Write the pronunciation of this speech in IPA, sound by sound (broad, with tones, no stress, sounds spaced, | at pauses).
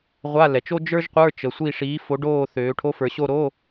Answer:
ʁʷ a˧˥˧ l ɛ˩˧ t͡ʃ o˥ d͡ʒ ə˞˥ ʒ qʷ ə˞˧˥˧ t͡ʃ ə˩˧ sʷ i˦˨ ʂ iː˨˥ f o˨˥ ɖ oː˦˨ θ øː˩˧ ʈʰ o˨˥ f ə˞˩˧ ɕ o˦˨ ɾ o˧˥˧